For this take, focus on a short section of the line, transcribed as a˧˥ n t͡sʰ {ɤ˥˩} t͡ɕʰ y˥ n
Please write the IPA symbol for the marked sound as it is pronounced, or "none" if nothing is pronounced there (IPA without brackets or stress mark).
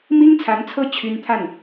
ɤ˥˩